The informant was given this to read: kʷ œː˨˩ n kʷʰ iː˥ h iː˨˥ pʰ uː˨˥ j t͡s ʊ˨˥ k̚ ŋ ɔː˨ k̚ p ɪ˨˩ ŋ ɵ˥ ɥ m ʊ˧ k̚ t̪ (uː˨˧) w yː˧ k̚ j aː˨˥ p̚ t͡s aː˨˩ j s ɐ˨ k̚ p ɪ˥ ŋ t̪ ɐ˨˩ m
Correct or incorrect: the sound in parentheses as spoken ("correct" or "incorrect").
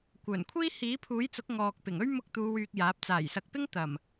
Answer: correct